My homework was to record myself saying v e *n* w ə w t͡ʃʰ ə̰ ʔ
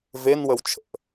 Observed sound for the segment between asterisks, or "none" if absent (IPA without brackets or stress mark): n